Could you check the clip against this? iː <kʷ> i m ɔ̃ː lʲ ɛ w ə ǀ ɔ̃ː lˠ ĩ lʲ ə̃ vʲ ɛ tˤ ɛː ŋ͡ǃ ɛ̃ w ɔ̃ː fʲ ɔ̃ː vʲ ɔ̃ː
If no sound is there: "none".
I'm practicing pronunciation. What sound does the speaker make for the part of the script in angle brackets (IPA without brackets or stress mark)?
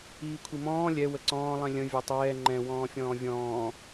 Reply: kʷʰ